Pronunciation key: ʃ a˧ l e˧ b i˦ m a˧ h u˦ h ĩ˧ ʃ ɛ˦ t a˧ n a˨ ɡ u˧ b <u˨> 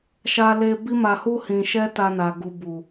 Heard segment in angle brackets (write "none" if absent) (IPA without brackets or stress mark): u˨